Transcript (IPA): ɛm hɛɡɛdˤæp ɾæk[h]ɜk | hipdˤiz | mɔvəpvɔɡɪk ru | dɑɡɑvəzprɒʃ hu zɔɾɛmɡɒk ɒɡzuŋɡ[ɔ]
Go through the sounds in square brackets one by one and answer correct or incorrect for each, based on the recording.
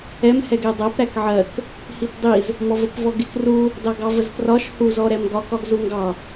incorrect, incorrect

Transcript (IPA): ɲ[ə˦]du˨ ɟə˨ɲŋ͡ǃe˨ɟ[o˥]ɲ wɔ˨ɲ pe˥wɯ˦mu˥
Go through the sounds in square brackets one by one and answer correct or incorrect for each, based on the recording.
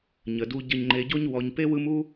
incorrect, incorrect

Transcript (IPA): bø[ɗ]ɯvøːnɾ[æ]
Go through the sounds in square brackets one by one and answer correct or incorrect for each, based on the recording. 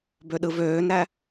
correct, correct

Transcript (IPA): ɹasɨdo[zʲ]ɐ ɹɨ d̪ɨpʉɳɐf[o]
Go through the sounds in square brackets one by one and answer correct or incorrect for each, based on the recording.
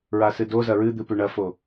incorrect, correct

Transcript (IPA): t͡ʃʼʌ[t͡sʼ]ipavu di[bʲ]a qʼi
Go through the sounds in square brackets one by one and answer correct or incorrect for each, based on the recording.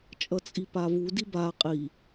correct, incorrect

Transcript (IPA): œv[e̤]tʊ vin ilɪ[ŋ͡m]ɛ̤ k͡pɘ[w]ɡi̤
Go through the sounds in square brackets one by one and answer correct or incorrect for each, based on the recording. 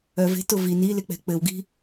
correct, incorrect, correct

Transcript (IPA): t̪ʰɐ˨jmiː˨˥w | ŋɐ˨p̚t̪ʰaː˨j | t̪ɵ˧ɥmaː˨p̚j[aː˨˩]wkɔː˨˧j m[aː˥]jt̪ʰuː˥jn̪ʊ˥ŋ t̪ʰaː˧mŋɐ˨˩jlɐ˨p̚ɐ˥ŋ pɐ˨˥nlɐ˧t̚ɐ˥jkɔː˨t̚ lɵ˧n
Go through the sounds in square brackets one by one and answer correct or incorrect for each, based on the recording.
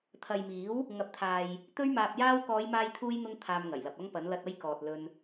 incorrect, correct

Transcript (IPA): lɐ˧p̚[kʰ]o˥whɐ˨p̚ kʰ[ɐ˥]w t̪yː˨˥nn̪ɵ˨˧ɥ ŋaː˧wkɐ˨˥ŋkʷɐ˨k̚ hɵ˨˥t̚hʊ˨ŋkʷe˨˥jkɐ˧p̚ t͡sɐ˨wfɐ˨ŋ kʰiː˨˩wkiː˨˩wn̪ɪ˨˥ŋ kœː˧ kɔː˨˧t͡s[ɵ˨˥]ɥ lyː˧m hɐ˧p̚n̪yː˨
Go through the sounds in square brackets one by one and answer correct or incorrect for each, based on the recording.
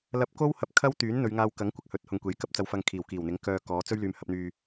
incorrect, correct, incorrect

